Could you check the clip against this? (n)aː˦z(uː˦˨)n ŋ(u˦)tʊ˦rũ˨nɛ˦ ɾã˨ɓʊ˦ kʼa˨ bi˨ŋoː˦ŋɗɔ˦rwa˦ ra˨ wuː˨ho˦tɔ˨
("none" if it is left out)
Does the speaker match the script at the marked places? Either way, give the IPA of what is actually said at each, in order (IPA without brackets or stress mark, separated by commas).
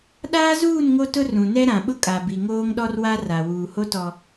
ɗ, uː˦˨, o˦